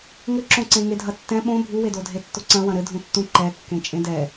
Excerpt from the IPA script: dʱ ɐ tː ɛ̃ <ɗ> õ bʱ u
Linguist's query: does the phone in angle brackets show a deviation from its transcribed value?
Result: yes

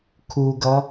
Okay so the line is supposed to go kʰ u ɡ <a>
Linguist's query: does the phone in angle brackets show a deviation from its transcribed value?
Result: yes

